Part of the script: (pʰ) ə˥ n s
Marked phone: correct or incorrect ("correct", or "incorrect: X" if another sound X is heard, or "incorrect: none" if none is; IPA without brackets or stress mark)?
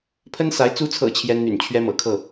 correct